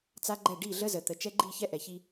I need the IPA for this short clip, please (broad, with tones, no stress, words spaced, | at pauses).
t͡sa˦ɡ͡ǃɛ˦˨ ɖi˦˨ɮə˦zə˨ t̪ə˨ t͡ʃɛ˦ɡ͡ǃi˦˨çɛ˦ ʔɛ˨çi˦